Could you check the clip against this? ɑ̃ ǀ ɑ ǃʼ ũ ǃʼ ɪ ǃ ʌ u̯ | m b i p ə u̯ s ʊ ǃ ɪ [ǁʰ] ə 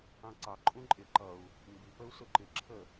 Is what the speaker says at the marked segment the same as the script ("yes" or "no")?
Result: yes